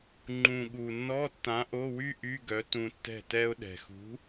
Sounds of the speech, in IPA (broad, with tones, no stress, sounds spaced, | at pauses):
ŋ͡ǃ ũ˨˩ ɠ u˨˩ nː ɔ˧˥˧ tː ã˨˥ ʔ o˧˥˧ w y˥ ʔ y˧˥˧ ɡ œ˨˥ t ũ˧ tː ɛ̤˥˩ t ɛ˧ ʊ̯ ɗ ɛ̤˨˩ x ṳ˨˥